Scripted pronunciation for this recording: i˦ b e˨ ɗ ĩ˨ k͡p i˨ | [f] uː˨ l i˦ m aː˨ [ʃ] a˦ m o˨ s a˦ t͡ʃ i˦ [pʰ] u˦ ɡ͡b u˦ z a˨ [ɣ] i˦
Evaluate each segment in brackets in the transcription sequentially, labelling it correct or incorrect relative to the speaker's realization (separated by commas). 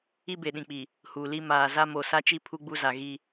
incorrect, incorrect, correct, correct